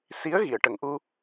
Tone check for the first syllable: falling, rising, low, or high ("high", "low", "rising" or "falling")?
rising